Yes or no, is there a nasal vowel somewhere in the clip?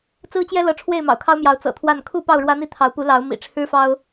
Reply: no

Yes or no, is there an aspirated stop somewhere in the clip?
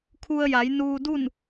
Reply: yes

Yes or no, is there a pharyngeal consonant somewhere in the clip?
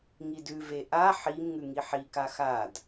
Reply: yes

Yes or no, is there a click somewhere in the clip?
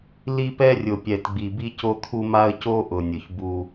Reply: no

